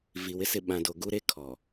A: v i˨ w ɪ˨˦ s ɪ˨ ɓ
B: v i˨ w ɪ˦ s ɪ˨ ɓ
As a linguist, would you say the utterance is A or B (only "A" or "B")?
B